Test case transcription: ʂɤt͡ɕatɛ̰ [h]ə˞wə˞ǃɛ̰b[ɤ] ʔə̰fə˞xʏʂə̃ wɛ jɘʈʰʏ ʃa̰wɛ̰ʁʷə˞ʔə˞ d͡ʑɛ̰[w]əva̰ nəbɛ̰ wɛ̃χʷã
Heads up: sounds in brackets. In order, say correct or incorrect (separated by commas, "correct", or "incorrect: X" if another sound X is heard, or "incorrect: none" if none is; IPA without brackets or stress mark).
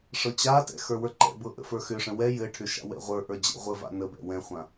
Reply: incorrect: x, correct, incorrect: ʁʷ